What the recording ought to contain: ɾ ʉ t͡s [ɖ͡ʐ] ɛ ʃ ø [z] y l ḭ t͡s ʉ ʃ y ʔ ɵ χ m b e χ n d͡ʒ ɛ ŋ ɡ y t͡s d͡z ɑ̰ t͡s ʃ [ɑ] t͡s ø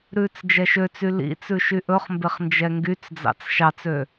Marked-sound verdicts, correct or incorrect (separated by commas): incorrect, incorrect, correct